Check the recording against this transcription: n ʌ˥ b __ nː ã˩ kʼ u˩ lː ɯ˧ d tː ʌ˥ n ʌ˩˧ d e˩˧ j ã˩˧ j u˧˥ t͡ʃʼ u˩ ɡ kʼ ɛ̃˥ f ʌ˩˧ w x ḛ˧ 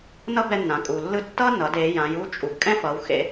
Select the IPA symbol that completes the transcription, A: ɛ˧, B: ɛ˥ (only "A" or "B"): A